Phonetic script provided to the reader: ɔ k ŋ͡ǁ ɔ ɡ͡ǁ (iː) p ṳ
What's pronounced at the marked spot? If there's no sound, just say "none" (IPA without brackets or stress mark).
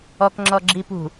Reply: i